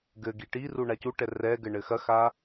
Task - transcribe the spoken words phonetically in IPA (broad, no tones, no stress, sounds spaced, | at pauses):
ɡ ɘ ɡ i ʈ i r u ɳ a c u ʈ ɛ r ɛ ɡ ɘ ɳ ɘ x ɐ x a